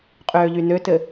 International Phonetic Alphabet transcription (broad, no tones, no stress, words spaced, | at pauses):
qʼøːʎynøtɘ